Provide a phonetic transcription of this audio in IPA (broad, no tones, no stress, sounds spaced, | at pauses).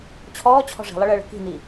t͡ɕʰ ɔː t͡ɕʰ ɔ̤ ʐ i̤ lˠ ʌ ɭ əː ɭ ə̤ k i̤ n i